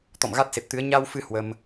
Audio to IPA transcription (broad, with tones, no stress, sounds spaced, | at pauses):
t̪ ɔ̰˧˨ m ɣ a˦˥ t̚ s e˨˩ p̚ t̪ ɨ˨˦ ə̯ ɲ a˧ w f ɨ˨˦ h w ə˧ m